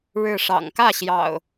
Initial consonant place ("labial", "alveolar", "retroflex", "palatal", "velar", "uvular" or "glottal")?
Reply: retroflex